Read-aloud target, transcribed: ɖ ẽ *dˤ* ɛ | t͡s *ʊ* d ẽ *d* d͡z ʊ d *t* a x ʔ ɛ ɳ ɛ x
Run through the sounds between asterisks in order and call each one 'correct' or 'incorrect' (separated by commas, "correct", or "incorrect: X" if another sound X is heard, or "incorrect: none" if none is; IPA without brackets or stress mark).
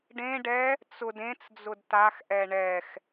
incorrect: ɖ, correct, incorrect: t͡s, correct